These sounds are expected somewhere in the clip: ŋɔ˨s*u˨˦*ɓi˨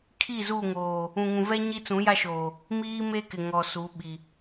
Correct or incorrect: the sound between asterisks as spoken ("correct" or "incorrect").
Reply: correct